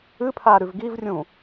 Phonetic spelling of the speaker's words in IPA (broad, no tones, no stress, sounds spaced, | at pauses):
ɨ pʰ a ɾ ʉ v ɡ i v rʲ ũ